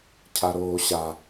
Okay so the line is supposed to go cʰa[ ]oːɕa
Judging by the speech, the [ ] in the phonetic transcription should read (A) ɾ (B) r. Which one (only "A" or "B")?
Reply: A